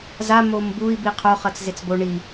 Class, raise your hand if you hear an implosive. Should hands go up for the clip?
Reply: no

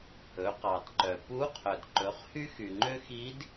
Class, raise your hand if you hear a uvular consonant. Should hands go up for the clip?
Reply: yes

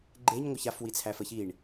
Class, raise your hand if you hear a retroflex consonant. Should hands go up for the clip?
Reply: yes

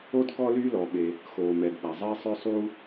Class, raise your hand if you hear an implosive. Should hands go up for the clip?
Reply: yes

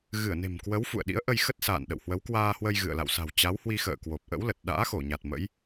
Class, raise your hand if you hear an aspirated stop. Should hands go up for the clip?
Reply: no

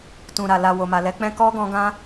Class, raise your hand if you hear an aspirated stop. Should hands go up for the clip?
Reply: no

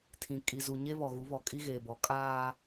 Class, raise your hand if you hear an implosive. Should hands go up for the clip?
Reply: no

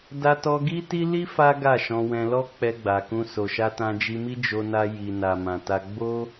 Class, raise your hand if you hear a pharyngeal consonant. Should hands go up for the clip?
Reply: no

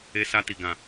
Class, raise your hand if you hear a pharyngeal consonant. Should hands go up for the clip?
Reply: no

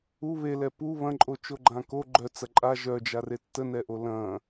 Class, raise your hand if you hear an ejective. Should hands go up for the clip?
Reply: yes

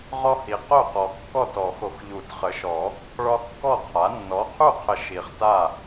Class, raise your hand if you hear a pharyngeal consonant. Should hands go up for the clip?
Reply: no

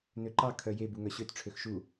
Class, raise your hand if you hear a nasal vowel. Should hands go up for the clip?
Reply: no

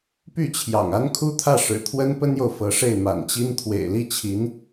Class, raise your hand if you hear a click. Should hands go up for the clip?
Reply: no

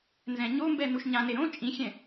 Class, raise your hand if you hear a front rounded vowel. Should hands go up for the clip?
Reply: no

